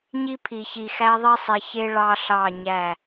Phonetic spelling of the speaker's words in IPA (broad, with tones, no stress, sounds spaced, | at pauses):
ɲ i˦ pʰ i˨ ç i˨ x æ˦ ðˤ i˦ sˤ i˨ ç e˦ ɭ ɑ˦ ɬ ɑ˦˨ ɲ æ˦˨